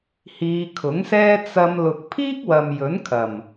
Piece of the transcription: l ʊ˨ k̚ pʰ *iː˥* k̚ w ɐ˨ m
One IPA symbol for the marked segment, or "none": iː˥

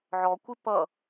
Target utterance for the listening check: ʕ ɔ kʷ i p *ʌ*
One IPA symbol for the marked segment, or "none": ʌ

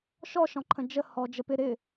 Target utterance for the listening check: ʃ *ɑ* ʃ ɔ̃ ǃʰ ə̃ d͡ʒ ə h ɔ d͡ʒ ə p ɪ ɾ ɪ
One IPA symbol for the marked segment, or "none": ɔ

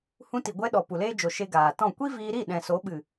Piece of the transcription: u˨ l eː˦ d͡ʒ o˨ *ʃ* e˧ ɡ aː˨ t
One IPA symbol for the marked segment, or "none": ʃ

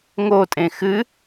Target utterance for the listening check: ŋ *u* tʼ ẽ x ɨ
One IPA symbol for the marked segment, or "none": o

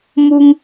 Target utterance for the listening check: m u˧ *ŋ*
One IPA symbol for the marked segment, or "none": ŋ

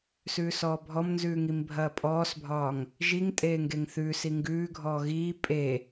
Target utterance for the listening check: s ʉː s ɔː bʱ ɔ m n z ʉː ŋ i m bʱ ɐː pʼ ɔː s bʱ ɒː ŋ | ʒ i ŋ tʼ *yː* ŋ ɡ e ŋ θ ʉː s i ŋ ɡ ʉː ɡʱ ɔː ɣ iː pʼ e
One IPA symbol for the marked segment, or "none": eː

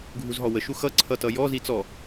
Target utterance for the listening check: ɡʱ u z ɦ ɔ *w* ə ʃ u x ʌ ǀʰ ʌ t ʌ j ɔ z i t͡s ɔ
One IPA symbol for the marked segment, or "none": w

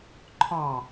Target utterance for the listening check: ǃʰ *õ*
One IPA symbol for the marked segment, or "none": ɔ̃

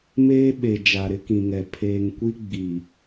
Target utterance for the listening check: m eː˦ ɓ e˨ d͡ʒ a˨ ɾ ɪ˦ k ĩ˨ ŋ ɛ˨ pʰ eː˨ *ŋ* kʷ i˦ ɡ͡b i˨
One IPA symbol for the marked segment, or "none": ŋ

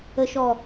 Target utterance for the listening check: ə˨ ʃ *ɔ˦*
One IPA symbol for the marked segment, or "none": ɔ˨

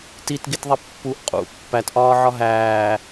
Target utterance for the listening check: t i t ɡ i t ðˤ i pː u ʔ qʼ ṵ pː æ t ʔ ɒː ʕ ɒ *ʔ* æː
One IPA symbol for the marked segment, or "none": ɦ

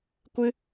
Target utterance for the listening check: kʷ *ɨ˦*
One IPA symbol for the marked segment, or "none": ɨ˦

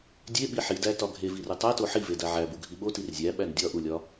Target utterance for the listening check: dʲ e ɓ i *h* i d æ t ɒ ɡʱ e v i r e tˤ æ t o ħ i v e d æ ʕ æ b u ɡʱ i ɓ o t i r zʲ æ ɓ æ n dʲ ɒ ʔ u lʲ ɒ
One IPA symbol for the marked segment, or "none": ħ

